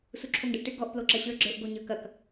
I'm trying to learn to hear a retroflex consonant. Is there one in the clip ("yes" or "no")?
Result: yes